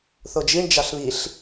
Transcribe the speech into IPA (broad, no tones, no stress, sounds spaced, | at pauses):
θ o d͡ʒ i ɳ d͡ʒ ɑ ɬ β i ɬ